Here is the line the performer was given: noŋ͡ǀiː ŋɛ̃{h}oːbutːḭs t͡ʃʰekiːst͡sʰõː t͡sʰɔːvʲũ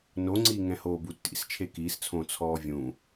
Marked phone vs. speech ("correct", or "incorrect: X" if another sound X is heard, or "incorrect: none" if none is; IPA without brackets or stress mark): correct